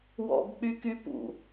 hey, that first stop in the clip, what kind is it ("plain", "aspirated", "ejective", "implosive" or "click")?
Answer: plain